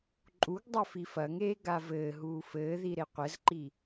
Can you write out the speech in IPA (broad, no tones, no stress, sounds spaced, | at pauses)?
ǃʼ u ɡ dˤ ɐ f i f ɐ ŋ eː ɡ a v ɘː ɦ uː f ɘː ð i ɾ e qʷ ɘ z ǃ i